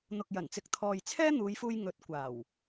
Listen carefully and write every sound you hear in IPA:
n̪ ʊ˨ k̚ j ɐ˨˩ n t͡s ɪ˨ k̚ t̪ʰ ɔː˨ j t͡sʰ ɛː˥ n̪ uː˨˧ j f uː˧ j ŋ ɵ˨˥ t̚ kʷ aː˨˩ w

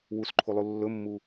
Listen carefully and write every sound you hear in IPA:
w u s ǃʰ u lˠ u lː ɵ mː u

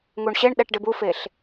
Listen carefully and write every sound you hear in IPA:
ŋ u ɳ ɕ e ɳ ɗ ɛ ʈ ɖ ɪ b u f e ɬ

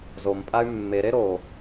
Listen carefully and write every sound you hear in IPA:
z o m pʼ a y̯ mː e ɾ e ɾ o

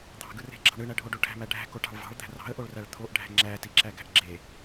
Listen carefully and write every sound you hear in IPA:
d̪ ɑ̤ ɡ ɯ r e̤ ɡ͡ǁ ɑ̤ ɳ ɯ ɳ æ ɖʱ o ɖ o ʈʰ æ̤ m æ ɖʱ æ̤ k o ʈ ɑ̤ ɭ v ɑ̤ ɭ d̪ æ̤ r ɑ̤ ə̯ ʔ o ɭ r æ ɭ t̪ʰ o ʔ ɖʱ æ̤ ŋ͡ǁ æ t i ǁ æ ɡ æ̤ ʔ ɡ͡ǁ e

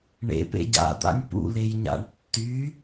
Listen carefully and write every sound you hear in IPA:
ɳ ḛ p ḛ ɟ a̰ d̪ a̰ nʲ p ṵ l e j ɲ a̰ ɳ tː y

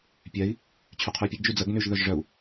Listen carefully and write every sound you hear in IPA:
pʲ ɛ i̯ | t͡ɕʰ y qʰ yː pʲ ə ɡ d͡ʒ y d͡z ə ɡ n y ʒ ð œ ʒ ʐ œ u̯

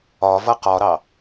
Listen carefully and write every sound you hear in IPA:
ɒ v ʌ q ɒ ɾ ɑ

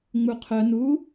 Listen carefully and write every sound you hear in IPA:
ŋ͡m u qʰ œ n u

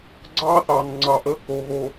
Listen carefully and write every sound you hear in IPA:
ɡ͡ǀ ɑː˦ θ ɑː˨ n ŋ͡ǀ ɑ˨ ʔ əː˦ k o˨ ɣ o˨

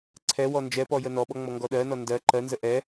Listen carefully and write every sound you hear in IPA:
ǀʰ ɛ w ɔ n d͡ʒ ɛ p ɔ j ə n ɔ ɓ ɔ ŋ͡m ɔ ŋ ɡ ɔ ɗ ɜ n ɔ n d ɜ ǃ ɜ n z ə ʔ ɛ

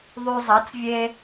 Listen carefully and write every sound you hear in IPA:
ðˤ y˧ zˤ ɐ˨˥ t͡s vʲ e˥

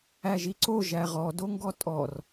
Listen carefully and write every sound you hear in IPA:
æ ʒ i ǀ o ʒ æ ʁ ɔ d o ŋ ɡ ɔ tʼ ɔ r

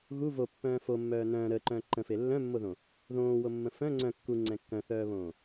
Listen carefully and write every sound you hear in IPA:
ɣ u v o pː œ̃ː f o mː œː n œ̃ː ɾ əː ǃ œ̃ː ǃ ə̃ f e lː œ̃ mː o ð õ | ð õː w o mː ə̃ f œ̃ ŋ͡ǀ œ̃ kː u ŋ͡ǀ ɛ̃ kː œ̃ θ œː β õː

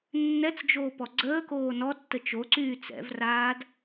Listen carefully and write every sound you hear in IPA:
nː ɛ t͡s d͡ʒ oː p ɔ ɡ͡ǀ əː k oː n ɔ tː ə t͡ʃ o ǀ yː t͡s ɛ̰ v r aː d

